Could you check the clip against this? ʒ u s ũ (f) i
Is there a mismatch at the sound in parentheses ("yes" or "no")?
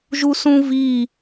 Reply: yes